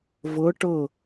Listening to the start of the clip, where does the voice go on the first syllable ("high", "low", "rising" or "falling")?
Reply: rising